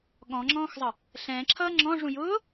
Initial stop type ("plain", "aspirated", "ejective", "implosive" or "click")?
implosive